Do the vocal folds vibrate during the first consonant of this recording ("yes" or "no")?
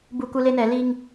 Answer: yes